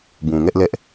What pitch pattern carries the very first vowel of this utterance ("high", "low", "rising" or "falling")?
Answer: low